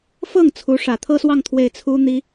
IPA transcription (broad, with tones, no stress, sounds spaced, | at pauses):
f ɤ˥˩ ŋ t͡sʰ u˧˥ ʂ ä˨˩ t̪ʰ ɤ˥ s w ɑ˥˧ ŋ t̪ʰ w e˥˩ ɪ̯ t͡sʰ u˥ n̪ i˥